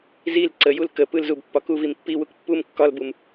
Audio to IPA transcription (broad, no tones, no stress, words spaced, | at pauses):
zil ǀəjul kə pɯlzub pːɒkuvim pːiwuk pːum kːɒlbum